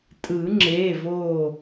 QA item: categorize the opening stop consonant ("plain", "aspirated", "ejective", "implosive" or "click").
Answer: ejective